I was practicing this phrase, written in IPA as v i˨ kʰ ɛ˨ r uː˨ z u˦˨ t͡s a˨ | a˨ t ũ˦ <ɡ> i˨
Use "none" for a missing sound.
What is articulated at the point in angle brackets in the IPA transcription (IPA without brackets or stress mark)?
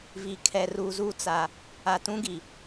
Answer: ɡ